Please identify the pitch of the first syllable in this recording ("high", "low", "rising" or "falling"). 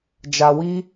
low